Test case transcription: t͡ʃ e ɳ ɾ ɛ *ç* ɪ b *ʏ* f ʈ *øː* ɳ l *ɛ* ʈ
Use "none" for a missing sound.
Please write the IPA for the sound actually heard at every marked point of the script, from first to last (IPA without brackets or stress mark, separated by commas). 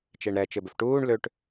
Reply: t͡ʃ, ʏ, uː, ø